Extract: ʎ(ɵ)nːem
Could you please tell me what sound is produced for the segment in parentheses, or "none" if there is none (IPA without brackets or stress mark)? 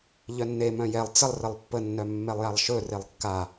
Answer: œ